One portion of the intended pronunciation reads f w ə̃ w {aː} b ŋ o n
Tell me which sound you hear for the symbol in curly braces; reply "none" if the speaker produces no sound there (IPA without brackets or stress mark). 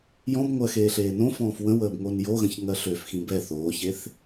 əː